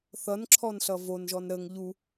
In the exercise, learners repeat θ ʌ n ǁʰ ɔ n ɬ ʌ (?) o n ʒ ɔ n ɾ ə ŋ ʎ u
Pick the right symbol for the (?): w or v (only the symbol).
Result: v